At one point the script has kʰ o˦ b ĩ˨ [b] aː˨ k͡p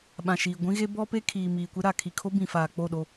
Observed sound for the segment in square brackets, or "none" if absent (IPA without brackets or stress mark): f